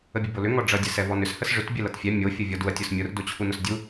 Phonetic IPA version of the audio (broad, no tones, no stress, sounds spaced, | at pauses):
ə bʲ ə b o l ʏ ŋ ɔ ɖ͡ʐ ʌ dʲ ɛ s ɛ v ɔ n ʏ s h ə s ʐ ʏ t bʲ ɛ l ʌ t fʲ ɛ mʲ o fʲ ʊ vʲ ɔ d u ɐ̯ tʲ ʊ s mʲ ʊ r d o t͡ɕʰ u n ʊ s dʲ u